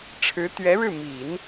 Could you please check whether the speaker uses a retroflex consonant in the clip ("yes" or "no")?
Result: yes